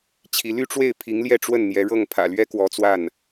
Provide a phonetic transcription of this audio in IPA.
t͡ɕʰ i˧˥ l y˥ ʈ͡ʂ w e˥˩ ɪ̯ pʰ i˧˥ ŋ l j ɛ˥˧ ʈ͡ʂ w ə˥˩ n n̪ j ɛ˧˥ ɻ ɤ˥˩ ŋ pʰ ä̰˨˩ l ɥ ɛ˥ k w ɔ˧˥ t͡s w a˥˩ n

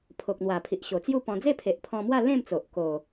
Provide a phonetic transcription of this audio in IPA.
pʰ o˨ k̚ n̪ w a˨˩ pʰ i˨ ʔ ɕ o˨˩ t͡s j u˥˧ p ɔ̃˧ d͡z e˥˧ pʰ e˨ ʔ pʰ ɔ̃˧ m w a˥˧ l ẽ˥˧ m t͡s o˨ ʔ k o˨˩

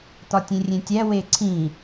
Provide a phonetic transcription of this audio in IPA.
t̪ ɒ tʲ ẽ rʲ ẽ tʲ æ w e ǀʰ ĩ

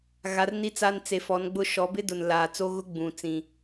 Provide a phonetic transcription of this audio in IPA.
ɣ a˨˦ r n i˦ t͡s a˦ n t͡s e˨ f ɔ˨˦ n ɡ͡b ʊ˦ ʃ ɔ˨˦ b ɪ˦ d ʊ˨ n l aː˨ t͡s o˦ ɣ ʊ˦ ɡ͡b ũ˨ t͡s ĩ˨

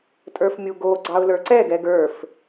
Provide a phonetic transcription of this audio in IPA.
tʼ ə˞ f mʲ u ɡ o ɡ͡ǀ ɑ ʊ̯ l ə˞ ǀ ɛ ɡ ɛ ɡ ə˞ f

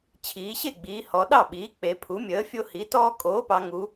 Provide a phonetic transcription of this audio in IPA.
t͡ɕʰ iː˩˧ ɕ e˥˩ ɡ͡b iː˩˧ h ɔ˩˧ ɗ ɑ˥˩ ɓ iː˩˥ k͡p e˩˧ pʰ u˩˥ mʲ əː˩˥ fʲ o˦ h i˩˥ t ɔː˦ kʼ oː˩˥ p ɑ˩˧ ŋ u˩˧

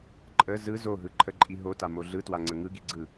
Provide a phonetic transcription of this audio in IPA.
ǃʼ ə z ɯ z o ɦ ɯ ǃʰ ə ǃʼ i ɦ o t a m o ɮ ɯ t w a ŋ͡ǀ ə ŋ ɯ ɡ i ɡ͡ǀ ɯ

